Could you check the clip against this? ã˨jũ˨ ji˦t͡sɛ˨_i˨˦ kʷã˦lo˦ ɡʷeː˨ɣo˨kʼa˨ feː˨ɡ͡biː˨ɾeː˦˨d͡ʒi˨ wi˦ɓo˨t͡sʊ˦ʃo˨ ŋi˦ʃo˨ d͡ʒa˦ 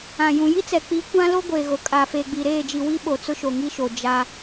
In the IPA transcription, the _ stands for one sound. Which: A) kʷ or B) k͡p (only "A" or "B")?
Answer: B